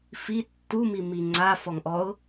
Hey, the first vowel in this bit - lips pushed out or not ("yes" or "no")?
no